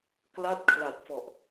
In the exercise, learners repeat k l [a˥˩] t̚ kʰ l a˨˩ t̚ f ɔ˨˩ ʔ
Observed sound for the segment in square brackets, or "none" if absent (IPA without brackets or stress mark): a˥˩